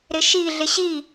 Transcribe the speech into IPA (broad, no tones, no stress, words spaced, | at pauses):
ɾɪʃi ɮɪɕi